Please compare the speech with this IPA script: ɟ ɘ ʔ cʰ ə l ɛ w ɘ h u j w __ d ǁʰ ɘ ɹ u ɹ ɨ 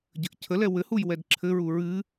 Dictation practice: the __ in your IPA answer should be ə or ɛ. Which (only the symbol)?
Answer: ɛ